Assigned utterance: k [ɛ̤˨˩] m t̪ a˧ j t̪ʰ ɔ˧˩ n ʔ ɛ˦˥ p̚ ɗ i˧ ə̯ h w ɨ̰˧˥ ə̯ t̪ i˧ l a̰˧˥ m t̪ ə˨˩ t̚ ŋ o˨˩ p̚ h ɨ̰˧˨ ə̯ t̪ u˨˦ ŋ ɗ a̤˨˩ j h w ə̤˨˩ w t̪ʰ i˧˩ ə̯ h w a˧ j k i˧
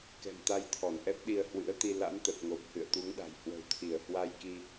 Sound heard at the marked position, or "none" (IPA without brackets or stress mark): ɛ̤˨˩